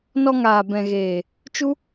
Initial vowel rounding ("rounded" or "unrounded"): rounded